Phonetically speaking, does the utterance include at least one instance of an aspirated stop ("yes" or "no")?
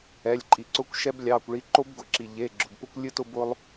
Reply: no